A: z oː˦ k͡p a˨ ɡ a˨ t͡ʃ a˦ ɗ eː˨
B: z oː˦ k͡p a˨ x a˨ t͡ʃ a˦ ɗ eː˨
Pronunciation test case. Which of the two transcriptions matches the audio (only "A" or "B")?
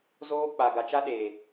A